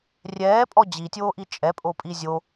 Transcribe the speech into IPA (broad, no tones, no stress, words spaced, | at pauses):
rʲɛːpʼɔ d͡ʑitʲoːʔi t͡ʃʼɛpʼopʼi zʲo